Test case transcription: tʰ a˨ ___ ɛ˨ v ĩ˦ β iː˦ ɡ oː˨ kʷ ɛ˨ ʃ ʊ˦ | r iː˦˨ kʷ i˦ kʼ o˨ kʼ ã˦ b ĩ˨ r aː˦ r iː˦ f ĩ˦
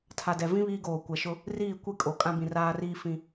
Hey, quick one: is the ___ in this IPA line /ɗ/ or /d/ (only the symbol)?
d